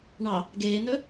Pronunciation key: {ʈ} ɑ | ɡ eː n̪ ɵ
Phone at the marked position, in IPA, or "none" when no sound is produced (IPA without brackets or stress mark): ɳ